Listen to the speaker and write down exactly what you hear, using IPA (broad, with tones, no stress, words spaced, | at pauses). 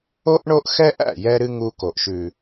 o˦ʔ ɳo˦ʔxɛ˦ʔæ̰˦˨ jɛ˦ɾɨ˦ ŋu˦ ko˨ʔʃʉ˨